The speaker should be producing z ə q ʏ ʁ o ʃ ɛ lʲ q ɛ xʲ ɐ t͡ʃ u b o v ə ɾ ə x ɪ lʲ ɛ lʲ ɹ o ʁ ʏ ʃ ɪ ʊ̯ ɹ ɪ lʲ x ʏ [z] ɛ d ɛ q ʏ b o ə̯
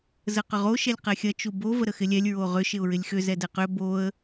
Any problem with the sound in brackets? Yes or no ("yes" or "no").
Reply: no